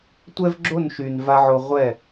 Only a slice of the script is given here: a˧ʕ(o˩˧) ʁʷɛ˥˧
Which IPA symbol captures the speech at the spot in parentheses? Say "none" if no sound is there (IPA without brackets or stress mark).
o˧